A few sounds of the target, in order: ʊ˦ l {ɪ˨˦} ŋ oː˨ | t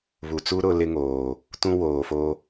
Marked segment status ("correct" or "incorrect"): incorrect